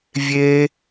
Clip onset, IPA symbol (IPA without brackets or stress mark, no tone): vʲ